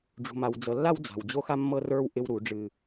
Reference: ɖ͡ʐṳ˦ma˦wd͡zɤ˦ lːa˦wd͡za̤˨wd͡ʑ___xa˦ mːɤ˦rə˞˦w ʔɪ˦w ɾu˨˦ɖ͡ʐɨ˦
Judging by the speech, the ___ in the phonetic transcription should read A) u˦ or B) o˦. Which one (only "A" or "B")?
B